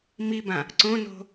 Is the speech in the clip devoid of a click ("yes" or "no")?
no